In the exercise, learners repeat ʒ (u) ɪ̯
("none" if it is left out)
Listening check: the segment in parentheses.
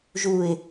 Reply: u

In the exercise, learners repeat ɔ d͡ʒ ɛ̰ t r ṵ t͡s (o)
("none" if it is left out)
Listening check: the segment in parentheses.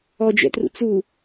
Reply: u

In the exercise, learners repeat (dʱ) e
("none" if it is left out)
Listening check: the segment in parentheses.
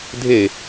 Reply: dʱ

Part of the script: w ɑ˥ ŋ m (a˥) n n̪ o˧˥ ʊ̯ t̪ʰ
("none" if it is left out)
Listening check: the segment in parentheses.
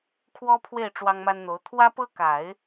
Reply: a˥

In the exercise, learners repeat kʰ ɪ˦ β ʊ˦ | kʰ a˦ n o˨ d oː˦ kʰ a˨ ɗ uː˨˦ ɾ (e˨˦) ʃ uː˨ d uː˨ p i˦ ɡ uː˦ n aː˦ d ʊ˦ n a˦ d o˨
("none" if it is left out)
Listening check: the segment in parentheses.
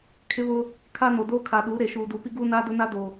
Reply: e˨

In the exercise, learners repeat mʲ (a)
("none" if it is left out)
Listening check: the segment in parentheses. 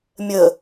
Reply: ə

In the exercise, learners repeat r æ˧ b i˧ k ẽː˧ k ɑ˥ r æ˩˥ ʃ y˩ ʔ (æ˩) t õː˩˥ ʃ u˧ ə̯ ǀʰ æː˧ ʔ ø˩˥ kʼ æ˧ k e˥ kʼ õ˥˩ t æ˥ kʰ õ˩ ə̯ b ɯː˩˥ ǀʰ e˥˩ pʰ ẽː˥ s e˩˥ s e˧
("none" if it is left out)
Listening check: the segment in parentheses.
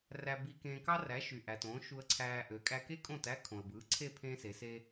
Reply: æ˩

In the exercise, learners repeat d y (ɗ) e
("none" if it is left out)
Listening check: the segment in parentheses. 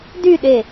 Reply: ɗ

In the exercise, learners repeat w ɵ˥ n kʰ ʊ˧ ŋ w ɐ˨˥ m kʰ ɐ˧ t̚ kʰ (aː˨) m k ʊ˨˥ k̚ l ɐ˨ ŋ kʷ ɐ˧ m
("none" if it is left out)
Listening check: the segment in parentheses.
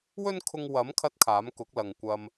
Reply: aː˨˥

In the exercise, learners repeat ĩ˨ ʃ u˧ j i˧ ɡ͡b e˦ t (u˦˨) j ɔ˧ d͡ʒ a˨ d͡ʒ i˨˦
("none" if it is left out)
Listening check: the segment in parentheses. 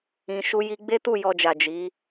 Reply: u˦˨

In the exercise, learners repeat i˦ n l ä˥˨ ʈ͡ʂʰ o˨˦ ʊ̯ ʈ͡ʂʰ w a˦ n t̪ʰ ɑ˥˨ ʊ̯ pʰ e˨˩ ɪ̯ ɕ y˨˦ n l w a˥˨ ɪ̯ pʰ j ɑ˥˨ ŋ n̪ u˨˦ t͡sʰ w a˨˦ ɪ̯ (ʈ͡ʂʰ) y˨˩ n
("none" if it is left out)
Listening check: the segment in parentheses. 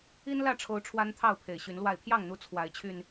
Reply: t͡ɕʰ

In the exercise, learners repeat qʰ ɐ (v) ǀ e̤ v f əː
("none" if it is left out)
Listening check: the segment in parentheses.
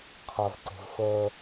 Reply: v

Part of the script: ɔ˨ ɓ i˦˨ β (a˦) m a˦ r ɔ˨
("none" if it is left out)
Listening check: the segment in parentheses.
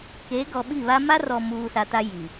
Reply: a˦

